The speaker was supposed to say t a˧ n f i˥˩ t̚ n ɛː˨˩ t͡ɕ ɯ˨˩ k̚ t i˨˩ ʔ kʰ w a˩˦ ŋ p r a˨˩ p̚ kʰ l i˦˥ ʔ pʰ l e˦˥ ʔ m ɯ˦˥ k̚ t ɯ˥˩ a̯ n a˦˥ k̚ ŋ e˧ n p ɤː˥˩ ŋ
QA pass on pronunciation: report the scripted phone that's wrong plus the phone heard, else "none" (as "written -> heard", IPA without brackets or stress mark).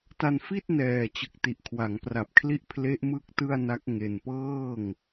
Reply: none